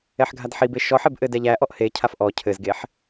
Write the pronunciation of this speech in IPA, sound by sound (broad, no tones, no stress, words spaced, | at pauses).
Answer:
ɛħɡʱadħibe ʃɔħeb ʔɘdɛ ʎæʔɔʔ hecʰaf ʔɔ cʰɘzɡeħ